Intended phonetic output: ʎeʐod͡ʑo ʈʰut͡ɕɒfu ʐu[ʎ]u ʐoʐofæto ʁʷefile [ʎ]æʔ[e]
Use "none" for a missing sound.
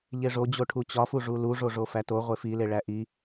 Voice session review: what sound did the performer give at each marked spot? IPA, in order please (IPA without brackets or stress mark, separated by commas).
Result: l, ɭ, i